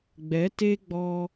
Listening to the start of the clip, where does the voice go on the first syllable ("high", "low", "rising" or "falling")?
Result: rising